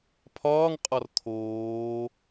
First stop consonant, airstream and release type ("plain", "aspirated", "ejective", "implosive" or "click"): aspirated